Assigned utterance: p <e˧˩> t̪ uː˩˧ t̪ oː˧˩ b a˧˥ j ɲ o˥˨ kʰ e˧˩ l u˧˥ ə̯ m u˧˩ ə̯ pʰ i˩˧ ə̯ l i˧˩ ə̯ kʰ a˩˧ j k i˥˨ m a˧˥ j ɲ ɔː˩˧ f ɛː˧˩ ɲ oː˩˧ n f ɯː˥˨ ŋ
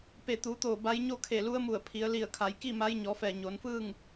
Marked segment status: correct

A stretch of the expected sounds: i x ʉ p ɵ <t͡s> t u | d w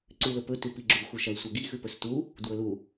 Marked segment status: incorrect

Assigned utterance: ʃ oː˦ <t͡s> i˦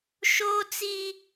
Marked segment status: correct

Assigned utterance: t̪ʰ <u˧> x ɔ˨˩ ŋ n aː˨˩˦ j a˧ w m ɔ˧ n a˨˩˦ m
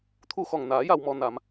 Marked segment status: correct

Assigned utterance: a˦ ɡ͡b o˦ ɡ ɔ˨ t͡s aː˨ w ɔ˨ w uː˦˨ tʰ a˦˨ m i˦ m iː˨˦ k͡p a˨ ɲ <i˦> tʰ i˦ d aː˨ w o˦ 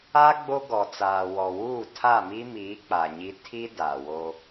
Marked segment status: correct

